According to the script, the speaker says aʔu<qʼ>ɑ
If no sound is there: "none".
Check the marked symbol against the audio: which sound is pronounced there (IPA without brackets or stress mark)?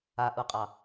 qʼ